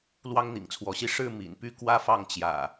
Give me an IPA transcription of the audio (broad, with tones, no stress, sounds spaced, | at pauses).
l w ɑ˦ ŋ n̪ ḭ˨˩ ŋ t͡sʰ w ɔ˨˦ ɕ i˦ ʂ ɻ̩˥˨ m ḭ˨˩ n p y˥˨ k w ä˦ f ɑ˥˨ ŋ t͡ɕ j ä̰˨˩